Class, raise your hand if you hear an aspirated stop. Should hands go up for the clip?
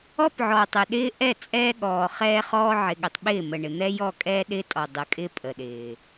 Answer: no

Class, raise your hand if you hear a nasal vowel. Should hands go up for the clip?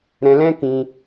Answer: yes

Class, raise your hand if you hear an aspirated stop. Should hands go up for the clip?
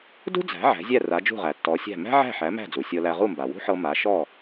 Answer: no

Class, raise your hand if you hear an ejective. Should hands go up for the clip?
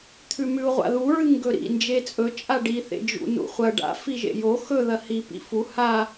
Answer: yes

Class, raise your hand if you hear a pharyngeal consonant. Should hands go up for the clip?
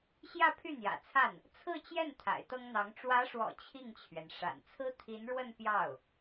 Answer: no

